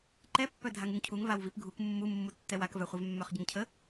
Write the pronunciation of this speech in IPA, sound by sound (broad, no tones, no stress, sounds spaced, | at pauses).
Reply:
ǃ ɛ pː œ dʱ a ŋ u ŋ cʰ u ŋ v a w v i p ɡʱ u k mː u mː u tː ɛ w a k v œ χʷ ɛ v mː œ χ ɟ ə ŋ cʰ ə